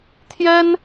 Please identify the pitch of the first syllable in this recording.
high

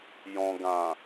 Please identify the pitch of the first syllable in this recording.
low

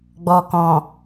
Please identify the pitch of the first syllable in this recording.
low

